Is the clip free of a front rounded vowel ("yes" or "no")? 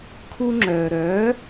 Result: no